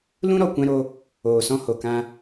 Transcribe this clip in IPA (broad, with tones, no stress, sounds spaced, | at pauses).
l ũ˦ ɾ ɔ˨ kʷ ɛ̃˧ ɾ o˧ | oː˨ s ɔ̃˧ h o˨ k ã˧